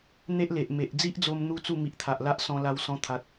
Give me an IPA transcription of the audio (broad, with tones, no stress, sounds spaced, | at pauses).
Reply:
n̪ e˦ ʔ l e˨ ʔ m e˨ ʔ d͡z i˦ ʔ d͡z o˧ m n̪ u˧ t͡s u˥˧ m i˨ ʔ t̪ʰ a˨ ʔ l a˦ ʔ s ɔ̃˧ l a˧ w s ɔ̃˧ t̪ʰ a˨ t̚